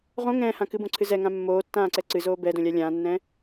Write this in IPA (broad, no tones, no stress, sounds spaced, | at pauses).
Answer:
ʁ õ ŋ ɛ̃ː h ã k ɨ b õ ǀʰ ɨ z ɛ ŋ ã mː oː tː ãː ǀ ɛ ǀ ɨ z oː b ɛ d õ lʲ a lʲ ãː nː ɛ̃ː